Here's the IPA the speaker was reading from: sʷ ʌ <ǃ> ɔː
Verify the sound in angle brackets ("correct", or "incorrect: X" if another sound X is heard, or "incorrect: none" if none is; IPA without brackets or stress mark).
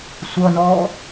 incorrect: n